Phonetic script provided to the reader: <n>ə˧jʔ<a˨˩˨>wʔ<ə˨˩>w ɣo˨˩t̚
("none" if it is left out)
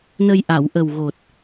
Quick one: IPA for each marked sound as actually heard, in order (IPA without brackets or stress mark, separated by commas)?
n, a˨˩˨, ə˨˩